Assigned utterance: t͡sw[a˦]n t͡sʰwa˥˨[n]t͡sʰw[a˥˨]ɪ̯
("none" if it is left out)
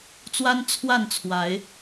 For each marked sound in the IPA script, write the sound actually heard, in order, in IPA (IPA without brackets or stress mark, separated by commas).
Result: a˦, n, a˨˦